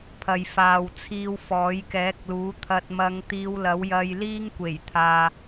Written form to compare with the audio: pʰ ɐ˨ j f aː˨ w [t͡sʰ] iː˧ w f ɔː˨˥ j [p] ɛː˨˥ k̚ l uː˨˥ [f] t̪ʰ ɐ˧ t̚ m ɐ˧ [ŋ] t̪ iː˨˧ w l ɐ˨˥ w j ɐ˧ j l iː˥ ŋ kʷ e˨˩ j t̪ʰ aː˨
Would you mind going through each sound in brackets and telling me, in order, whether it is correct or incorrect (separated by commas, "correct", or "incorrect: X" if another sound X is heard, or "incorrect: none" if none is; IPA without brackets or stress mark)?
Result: correct, incorrect: k, incorrect: none, correct